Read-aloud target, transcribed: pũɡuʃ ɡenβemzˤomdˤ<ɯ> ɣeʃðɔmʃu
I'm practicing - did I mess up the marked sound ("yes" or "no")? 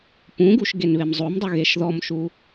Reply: no